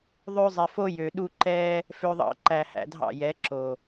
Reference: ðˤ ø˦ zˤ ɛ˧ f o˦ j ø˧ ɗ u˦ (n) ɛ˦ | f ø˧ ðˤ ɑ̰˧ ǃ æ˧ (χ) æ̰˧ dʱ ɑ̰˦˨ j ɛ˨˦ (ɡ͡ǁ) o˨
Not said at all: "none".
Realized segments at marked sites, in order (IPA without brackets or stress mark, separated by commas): ǃ, h, ǁ